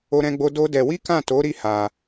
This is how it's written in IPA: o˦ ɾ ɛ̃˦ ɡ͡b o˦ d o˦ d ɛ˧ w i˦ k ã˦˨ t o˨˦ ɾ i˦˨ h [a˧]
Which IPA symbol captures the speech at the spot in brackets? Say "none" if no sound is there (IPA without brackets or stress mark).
a˧